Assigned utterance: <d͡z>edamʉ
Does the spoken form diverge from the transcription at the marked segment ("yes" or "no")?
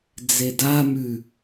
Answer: no